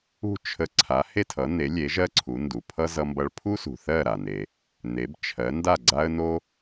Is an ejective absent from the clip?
yes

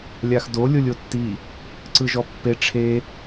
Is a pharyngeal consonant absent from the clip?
yes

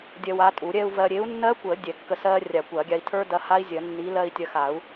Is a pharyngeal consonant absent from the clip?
yes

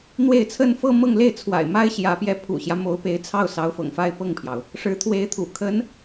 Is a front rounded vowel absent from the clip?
yes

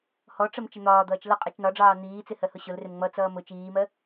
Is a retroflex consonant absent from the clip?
no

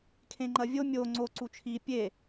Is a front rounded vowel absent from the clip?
yes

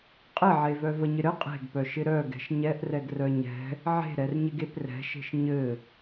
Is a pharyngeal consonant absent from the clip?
no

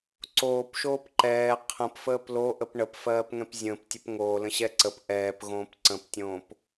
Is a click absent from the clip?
no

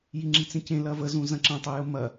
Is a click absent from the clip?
no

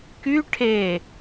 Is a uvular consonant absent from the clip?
yes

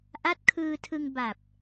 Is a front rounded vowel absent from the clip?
yes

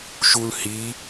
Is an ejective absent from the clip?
yes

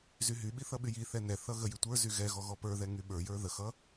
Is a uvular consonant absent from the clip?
yes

